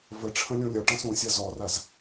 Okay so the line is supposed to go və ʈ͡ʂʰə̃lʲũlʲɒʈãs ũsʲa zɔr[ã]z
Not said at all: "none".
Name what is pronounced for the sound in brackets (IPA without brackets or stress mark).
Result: a